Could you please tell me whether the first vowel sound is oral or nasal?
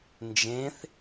nasal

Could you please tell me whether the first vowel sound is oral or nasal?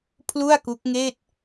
oral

